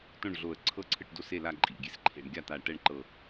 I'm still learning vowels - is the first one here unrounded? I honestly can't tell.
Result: no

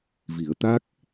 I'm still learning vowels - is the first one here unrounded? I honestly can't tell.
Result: yes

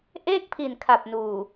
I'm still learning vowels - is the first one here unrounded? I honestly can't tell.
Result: yes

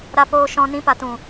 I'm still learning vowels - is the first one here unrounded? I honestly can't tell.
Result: yes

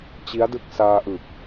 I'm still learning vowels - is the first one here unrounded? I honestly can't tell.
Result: yes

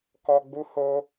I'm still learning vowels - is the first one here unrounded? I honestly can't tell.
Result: no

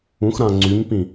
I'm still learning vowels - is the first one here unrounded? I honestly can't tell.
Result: no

